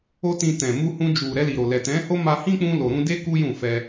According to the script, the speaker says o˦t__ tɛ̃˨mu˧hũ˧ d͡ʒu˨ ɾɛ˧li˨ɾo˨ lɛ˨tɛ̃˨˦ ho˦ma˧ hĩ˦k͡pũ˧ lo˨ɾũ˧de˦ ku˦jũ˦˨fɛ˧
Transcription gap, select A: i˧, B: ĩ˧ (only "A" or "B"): B